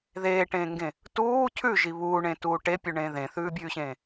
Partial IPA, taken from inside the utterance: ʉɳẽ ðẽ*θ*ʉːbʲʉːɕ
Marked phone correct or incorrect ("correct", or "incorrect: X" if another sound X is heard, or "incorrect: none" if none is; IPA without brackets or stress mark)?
correct